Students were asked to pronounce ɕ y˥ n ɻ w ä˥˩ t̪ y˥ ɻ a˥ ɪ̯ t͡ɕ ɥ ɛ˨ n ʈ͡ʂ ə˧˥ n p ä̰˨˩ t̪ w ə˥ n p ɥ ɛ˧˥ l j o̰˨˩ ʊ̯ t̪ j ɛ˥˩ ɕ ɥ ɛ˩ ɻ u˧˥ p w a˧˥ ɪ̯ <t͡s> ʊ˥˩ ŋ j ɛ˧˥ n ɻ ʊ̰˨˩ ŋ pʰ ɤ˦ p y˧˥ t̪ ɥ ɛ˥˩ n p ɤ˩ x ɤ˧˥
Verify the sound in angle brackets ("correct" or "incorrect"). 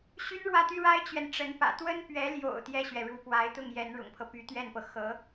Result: incorrect